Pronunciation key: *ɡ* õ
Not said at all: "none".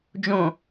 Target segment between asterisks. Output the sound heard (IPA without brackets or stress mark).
d͡ʒ